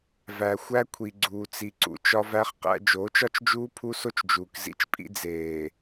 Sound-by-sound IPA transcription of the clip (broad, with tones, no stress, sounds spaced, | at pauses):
v æ˨ xʷ æ˦ kʷʰ i˨ ɡ͡ǀ uː˨ t͡s i˨ ǀ ṵ˨ t͡ʃ ɒ˦ v æ˦ χ q æ̰˦ d͡ʒ oː˨˦ t͡ʃ ɒ˦ t͡ʃ d͡ʒ uː˦ pʰ u˦ s o˦ t͡ʃ d͡ʒ uː˨ k z ḭ˦ t͡ʃ pʼ ḭ˦ d͡z eː˨